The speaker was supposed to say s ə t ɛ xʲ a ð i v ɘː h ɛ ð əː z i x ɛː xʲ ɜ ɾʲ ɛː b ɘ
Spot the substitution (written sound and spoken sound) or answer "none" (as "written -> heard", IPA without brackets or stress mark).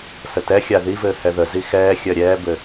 əː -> ə